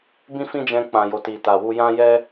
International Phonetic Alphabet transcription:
bĩ˦fĩ˦d͡ʒɛ̃˧ k͡pã˨jo˨ti˨ ta˨wu˧jã˦ jɛ˦

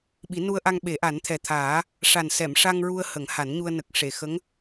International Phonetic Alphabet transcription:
ɓi˨˩˦nu˧ə̯ʔa˧ŋ ɓe˨˩˦ ʔa˨˩˦nt̪ʰɛ˨˩t̪ʰaː˨˩˦ | ʂa˨˩nsɛ˨˩˨mʂa˧ŋ ɹu˧ə̯ hə˨˩˦ŋha˨˩˦nɲu˧ə̯ nə˨˩k̚ʂe˨˩˨xə˧˥ŋ

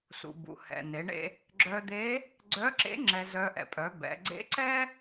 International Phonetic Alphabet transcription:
sṵ˩bṵ˩hɛ̰˩ ne˩˧ɳḛ˧ | ɡ͡ǁœ˧d̪e˧˥ | ɡ͡ǀœ˧˥ǁḛ˧˥ ŋ͡ǁɛ˧zœ˧ ʔɛ̰˩pʼœ˩˧ bɛ̰˩˧ ɡ͡ǀḛ˧˥ǀɛ˥

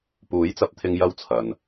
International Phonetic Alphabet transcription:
puː˨˥jt͡sɐ˨˥p̚t̪ʰɪ˧ŋ jɐ˥wt͡sʰɐ˨n

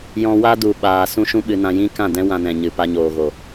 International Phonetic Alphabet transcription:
jɔ̃˧wa˦du˨ ɓaː˨ sũ˦ʃũ˦ɓɨ˧nã˧ jĩ˦kã˦˨dɛ̃˦ wã˧nɛ̃˨ɲɨ˨ pa˧ɲoː˨ɣo˨

